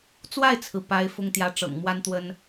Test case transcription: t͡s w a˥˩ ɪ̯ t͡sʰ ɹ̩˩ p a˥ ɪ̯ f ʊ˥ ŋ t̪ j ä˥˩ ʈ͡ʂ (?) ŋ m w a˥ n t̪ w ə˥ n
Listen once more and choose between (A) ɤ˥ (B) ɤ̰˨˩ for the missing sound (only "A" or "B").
B